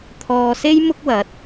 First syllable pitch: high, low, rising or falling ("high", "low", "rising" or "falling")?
low